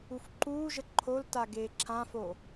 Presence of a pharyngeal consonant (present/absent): absent